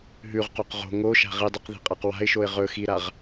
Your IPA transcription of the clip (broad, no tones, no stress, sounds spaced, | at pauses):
ɦ ʉ ʁ q o q ʁ o̤ ŋ o ʃ a̤ ʁ i dˤ ʉ q ð i̤ qʼ a q w a̤ ɪ̯ ʃ o ɪ̯ ʁ ɵ x i ɾ a ʁ